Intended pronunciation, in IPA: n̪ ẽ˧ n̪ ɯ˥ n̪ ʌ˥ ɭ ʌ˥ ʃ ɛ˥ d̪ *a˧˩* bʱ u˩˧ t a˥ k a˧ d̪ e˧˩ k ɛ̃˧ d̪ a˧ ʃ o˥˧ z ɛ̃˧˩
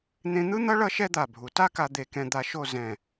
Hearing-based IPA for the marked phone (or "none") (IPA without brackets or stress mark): a˧˩